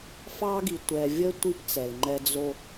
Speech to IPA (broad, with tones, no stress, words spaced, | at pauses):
fɑ˦ɡi˨ tʷɛ˨vʲə˦ tʷi˦pt͡sɛ˨lŋ͡ǃɛ˦ d͡zo˦